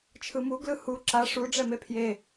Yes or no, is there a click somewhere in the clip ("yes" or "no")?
yes